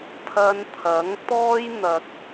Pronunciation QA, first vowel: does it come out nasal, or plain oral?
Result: oral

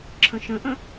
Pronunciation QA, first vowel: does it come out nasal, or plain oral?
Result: nasal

